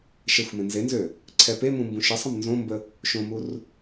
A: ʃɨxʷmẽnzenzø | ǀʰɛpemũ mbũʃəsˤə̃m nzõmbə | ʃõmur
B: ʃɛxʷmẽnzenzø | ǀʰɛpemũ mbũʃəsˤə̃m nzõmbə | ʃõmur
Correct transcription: B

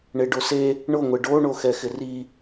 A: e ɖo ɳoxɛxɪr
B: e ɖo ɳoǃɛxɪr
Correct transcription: A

